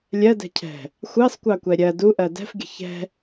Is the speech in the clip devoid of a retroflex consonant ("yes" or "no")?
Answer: yes